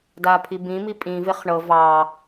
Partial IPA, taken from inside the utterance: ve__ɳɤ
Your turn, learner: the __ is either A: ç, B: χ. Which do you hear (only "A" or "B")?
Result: B